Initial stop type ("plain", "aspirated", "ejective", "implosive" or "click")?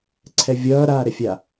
click